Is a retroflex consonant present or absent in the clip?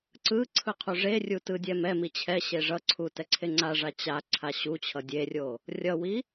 present